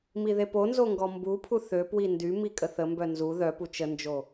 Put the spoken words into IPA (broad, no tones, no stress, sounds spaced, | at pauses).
m i ð e p o n z o ŋ ɡ ɔ m b u pʰ u θ ø p w i n d y m i kʼ ə θ ə m b œ n z u ð œ p u t͡ʃ ə n d͡ʒ o